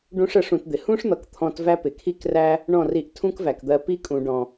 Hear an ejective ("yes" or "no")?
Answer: yes